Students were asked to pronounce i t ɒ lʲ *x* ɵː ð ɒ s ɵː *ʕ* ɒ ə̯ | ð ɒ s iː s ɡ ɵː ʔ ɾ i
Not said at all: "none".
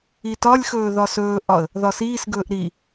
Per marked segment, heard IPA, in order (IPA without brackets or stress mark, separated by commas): x, ʔ